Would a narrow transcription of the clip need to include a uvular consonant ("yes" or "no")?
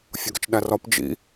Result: no